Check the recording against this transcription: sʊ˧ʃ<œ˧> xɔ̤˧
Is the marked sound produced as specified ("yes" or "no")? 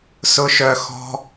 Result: yes